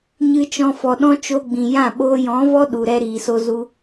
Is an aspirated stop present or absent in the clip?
absent